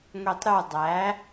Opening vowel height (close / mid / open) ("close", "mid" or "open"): close